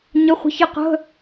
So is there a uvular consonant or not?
yes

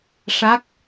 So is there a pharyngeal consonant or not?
no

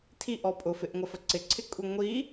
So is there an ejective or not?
yes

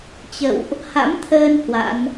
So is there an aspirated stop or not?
yes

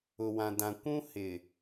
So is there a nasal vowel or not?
yes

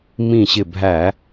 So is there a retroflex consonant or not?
no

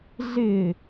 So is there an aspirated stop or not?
no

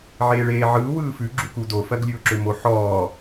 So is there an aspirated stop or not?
no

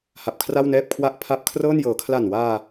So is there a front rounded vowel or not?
no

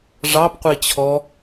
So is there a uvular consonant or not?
yes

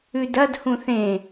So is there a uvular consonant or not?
no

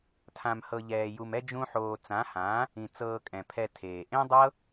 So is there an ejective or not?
yes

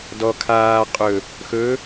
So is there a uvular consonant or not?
yes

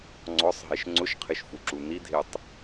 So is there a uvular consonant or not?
yes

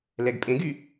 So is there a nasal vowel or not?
yes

